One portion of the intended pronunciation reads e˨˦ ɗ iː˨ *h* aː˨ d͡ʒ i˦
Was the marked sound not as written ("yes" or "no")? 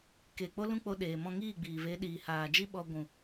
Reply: no